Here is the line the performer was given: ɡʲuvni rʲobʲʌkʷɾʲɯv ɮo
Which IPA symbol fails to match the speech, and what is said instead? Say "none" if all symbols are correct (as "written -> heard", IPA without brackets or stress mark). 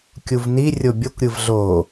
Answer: ɡʲ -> kʲ